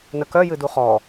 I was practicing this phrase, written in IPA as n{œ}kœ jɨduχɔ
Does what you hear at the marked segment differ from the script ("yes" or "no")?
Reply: yes